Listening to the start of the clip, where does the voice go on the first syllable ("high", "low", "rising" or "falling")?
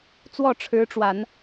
falling